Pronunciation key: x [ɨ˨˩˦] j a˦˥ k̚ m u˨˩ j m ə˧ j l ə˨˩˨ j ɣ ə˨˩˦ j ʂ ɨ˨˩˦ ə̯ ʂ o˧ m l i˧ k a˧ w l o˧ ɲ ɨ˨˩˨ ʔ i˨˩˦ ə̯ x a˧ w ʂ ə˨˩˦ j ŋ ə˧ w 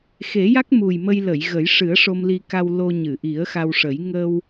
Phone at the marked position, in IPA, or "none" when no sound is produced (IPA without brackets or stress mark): e˨˩˦